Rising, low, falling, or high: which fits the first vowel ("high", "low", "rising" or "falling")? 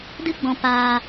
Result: high